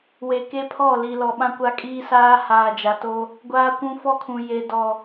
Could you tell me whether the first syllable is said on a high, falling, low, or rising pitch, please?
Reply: low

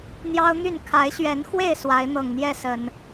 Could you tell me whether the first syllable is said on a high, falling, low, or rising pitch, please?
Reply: high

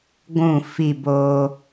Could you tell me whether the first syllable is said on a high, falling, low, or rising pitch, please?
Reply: falling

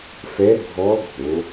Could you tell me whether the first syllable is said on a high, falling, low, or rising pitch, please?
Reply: rising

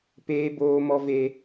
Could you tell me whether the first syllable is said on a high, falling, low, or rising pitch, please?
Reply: high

